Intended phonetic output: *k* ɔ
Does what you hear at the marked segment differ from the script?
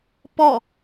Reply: yes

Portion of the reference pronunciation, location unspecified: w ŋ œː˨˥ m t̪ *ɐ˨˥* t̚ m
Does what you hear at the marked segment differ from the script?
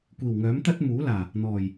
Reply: yes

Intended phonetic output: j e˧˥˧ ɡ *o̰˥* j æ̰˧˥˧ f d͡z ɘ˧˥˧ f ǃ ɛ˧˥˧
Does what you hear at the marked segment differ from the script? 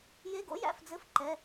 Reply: no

